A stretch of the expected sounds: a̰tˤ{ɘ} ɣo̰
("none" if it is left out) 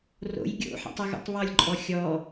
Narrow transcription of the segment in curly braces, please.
ɘ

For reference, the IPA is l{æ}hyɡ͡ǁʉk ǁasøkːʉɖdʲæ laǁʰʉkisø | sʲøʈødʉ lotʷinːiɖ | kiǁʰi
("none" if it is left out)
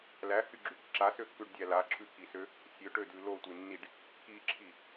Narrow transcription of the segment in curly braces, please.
æ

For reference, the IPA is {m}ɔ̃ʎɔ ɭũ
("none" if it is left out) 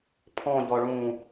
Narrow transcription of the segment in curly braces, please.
pʰ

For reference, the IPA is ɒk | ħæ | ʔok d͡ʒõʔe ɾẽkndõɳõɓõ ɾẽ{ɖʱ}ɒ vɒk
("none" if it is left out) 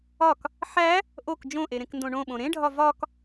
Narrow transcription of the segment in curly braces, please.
ɖʱ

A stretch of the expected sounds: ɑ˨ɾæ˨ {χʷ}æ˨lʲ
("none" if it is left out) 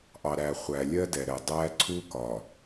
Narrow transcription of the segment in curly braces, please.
χʷ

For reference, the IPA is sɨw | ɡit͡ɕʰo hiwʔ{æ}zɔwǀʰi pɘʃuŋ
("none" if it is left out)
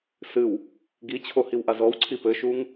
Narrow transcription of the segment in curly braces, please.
a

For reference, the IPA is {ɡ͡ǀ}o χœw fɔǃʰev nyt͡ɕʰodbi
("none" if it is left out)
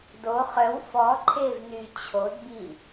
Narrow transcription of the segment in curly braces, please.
d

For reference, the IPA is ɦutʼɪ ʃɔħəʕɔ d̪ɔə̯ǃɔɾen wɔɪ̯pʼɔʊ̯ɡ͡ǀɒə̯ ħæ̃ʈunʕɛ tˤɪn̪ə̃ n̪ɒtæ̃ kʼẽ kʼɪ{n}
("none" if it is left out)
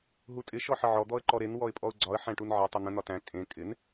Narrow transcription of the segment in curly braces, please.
n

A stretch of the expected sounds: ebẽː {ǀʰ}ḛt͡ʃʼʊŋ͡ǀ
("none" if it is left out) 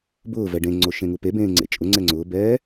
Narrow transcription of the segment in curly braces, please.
ŋ͡ǀ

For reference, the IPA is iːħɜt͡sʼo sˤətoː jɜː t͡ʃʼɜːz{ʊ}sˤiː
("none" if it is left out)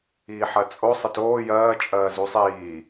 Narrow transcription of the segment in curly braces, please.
u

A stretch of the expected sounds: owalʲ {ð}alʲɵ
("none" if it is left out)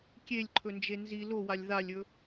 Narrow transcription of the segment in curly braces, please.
ð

